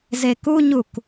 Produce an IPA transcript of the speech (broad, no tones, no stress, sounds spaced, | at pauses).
z e k u ɲ u k